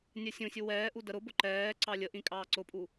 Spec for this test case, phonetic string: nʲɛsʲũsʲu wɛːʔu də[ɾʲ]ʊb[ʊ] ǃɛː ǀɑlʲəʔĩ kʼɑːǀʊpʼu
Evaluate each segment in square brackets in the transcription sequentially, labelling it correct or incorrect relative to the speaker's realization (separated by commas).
incorrect, correct